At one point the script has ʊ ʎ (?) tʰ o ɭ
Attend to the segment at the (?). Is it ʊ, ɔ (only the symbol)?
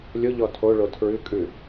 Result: ɔ